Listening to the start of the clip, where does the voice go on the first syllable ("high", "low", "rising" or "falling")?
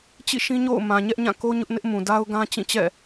falling